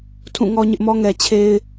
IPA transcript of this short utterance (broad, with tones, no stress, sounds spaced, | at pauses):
tʰ ũ˦˨ ŋ ɔ˦ ɲ ɪ˦ ʔ m ɔ˦ ŋ ɛ˨ t͡ɕʰ e˦ ɪ̯